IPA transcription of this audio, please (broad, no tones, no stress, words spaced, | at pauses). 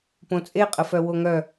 põt͡sʼeqʼəfœ woŋœ